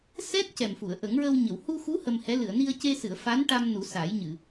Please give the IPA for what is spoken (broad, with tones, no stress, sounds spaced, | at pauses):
s ɛ˦˥ t̚ c ɛ˨˩ m f u˨˩˨ ə̯ ʔ ə˨˩˦ ŋ ɹ ə˧ w ɲ ə˨˩˨ w h u˧ x u˧˥ h ə˧ m h ɛ˧˥ l ɨ˨˩˨ ə̯ n i˧ ə̯ c e˧ s ɨ˨˩˨ ə̯ f a˧˥ n ʈ a˧ m n u˨˩˦ s a˨˩˦ j ɲ ɨ˨˩˨